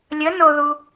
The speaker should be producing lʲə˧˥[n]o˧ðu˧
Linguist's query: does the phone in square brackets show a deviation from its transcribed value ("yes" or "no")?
no